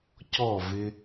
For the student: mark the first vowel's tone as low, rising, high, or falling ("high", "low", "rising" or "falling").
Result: falling